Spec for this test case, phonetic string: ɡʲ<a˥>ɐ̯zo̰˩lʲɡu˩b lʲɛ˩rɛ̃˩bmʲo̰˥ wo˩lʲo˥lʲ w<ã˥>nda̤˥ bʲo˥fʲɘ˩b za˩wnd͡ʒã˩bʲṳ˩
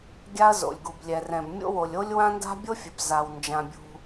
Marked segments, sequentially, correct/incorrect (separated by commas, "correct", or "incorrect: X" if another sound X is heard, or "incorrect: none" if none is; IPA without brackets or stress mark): correct, correct